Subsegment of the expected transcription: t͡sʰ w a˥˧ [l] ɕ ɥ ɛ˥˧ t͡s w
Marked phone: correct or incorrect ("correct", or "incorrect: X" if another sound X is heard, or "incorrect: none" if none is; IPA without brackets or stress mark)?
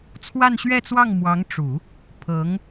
incorrect: n